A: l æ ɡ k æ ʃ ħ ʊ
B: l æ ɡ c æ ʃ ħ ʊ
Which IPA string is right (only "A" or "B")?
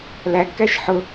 A